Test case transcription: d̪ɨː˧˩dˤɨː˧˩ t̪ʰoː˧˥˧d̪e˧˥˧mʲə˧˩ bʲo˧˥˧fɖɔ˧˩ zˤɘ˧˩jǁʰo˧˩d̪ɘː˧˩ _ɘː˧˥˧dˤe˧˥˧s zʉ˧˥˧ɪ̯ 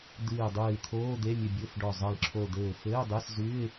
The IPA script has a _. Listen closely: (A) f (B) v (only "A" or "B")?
A